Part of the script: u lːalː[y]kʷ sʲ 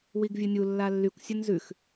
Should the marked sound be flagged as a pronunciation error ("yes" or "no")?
no